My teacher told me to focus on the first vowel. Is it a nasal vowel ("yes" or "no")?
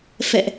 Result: no